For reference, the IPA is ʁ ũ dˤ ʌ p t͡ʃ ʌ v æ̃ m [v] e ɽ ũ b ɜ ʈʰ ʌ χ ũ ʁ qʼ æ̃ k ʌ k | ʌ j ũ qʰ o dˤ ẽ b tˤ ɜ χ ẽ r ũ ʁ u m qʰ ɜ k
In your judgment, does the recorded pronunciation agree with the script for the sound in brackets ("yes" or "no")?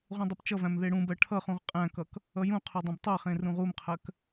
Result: no